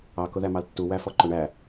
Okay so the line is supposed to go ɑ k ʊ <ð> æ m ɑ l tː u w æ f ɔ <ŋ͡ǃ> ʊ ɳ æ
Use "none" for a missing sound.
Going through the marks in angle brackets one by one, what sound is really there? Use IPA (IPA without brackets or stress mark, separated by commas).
ð, ǃ